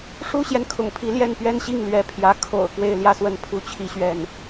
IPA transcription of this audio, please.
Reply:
ʂ u˥ ɕ j ɛ˨ n kʰ ʊ̰˨˩ ŋ pʰ i˧˥ l j ɛ˥˩ n p ɥ ɛ˥ n ɕ i˥˩ ŋ l ɥ ɛ˧˥ pʰ j ä˧˥ kʰ o̰˨˩ ʊ̯ k w e˥˧ ɪ̯ l j ä˥˧ s w ə˥˩ n pʰ u˥ t͡ɕʰ i˥ ɕ ɥ ɛ˥˩ n

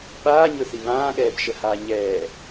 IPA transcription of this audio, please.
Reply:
ɓ aː ɲ ɵ θ i β ãː ɠ ɛː b ʃ ə h aː ɲ ɛː

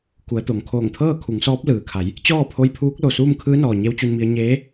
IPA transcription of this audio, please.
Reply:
k u˩˧ ə̯ t̪ o˩ ŋ kʰ oː˧˩ ŋ t̪ʰ ɤː˥˨ kʰ u˩˧ ŋ s ɔː˧˥ p̚ l ɯː˩ kʰ a˩˧ j | t͡ɕ ɔː˥˨ pʰ o˧˥ j pʰ uː˧˥ k̚ l o˩ s uː˥˨ m kʰ ɯː˧˥ n ɔː˩ ɲ e˧˥ w t͡ɕ u˧ n m i˧ ə̯ ɲ eː˧˥

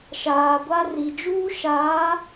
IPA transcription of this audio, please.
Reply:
ʃ aː˨ ɡʷ a˦ r i˨ d͡ʒ uː˦ ʃ aː˨˦

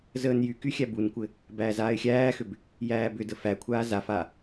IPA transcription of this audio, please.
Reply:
z əː n j y k y xʲ æ b u n kʷ ɘ | b æː z aː ɪ̯ xʲ æː x ʏ b | j æː b ʏ d ə f æ kʷʰ aː z a f a

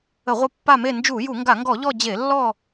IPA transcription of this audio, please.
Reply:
ə˧˩˧ ʁʷ ə˦˨ pː a˦˨ m e˦˨ n d͡ʒ u˧˩˧ j u˧˩˧ ŋ ɡ a˧˩˧ ŋ ɡ ɔ˧˩˧ ʎ ɔ˦˨ d͡ʑ e˧˩˧ lː ɔ˦˨

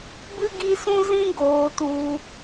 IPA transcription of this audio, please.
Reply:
b ɨ˦ ɡ i˦ s ũ˦ z ĩ˦ ɡ oː˧ t u˧

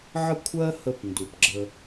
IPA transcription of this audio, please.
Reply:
ʕ ə˥˩ kʷʰ ɜ˥ h ə˧ p n d u˩ p ɡ͡ǁ ə˧

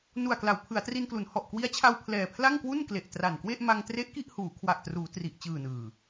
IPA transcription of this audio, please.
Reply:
n u˨˩ a̯ k l a˩˦ w pʰ ɯ˩˦ a̯ t r i˧ n k l u˩˦ n h ɔ˨˩ ʔ k w i˦˥ a̯ t͡ɕʰ a˧ w pʰ l ɛː˨˩ pʰ l a˥˩ ŋ k w u˥˩ n k l e˨˩ ʔ t r a˨˩ n k w e˥˩ ʔ m a˧ ŋ t r e˦˥ ʔ k i˥˩ ʔ h uː˩˦ kʰ w a˨˩ ʔ t r uː˩˦ t r i˨˩ ʔ t͡ɕ ɯː˨˩ n ɯː˨˩

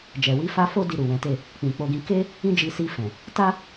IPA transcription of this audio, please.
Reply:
d͡ʒ ɛ˨ w i˧ f a˧ f o˦ d i˧ ɾ u˨ w ɛ̃˨˦ t e˦˨ | k͡p ĩ˨ k͡p o˧ ɡ ĩ˧ k e˦ | ĩ˦ d͡ʒ i˧ s i˧ f ɛ̃˨ | t a˦

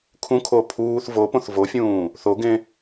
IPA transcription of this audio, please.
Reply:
kʰ ũ kʰ o pʰ uː θ v o p õ θ v o fʲ ũː | θ o ɡ ẽ

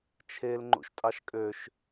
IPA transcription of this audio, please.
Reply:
t͡ʃʰ e l ŋ͡ǃ ṵ ʃ tʼ ɑ ʃ kʼ ø ʃ

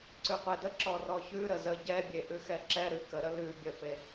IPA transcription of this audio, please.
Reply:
ǀ ʉ qʷ ɛ d ə ǁ ɔ r ɔ ç ʉ ɾ ə z ə ɟ ɛ bʲ e ʔ ʉ x ɛ ǁ ɛ ɾ ʉ k ə ɾ ə l ʉ bʲ ə f e

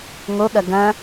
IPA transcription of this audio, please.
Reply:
ŋ o ɠ ɐ ɡ ɐ̃

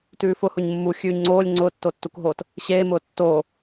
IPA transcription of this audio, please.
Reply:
t ʉː f ʊ h ʊ ɲ mː u xʲ ʉː ɲ ŋ͡ǀ oː lʲ ŋ͡ǀ ʊː tː o tː u k ɦ oː t | ɕ eː m ʊː tː oː

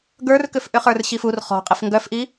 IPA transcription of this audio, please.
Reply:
ɡ ə˞ r k ʏ f ʔ ʏ χ ə˞ r ɕ i f u r χ ɔ̤ qʼ i f ŋ ɡ œ f ʔ i

